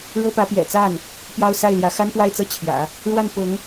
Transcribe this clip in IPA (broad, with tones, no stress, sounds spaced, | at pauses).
ɻ ɤ˥ p ä˧˥ p j ɛ̰˨˩ t͡s a˥˩ n | p j ɑ˥ ʊ̯ s a˥˩ ɪ̯ l j ä˧˥ x a˥ n p w a˥˧ ɪ̯ t͡s ɤ˥˩ t͡ɕʰ j ä̰˨˩˦ | ɻ w a˥˩ n p ʊ˧˥ ŋ